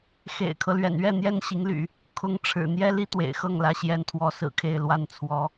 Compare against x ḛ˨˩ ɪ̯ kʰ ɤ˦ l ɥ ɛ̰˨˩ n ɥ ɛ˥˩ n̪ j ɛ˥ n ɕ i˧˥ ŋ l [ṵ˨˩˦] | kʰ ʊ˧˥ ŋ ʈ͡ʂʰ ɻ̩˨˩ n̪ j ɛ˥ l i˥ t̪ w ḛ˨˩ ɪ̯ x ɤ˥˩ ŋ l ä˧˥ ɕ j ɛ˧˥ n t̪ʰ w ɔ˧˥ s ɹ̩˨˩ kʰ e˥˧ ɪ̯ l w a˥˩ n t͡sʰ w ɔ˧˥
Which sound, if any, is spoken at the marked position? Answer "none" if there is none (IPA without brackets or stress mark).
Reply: y̰˨˩˦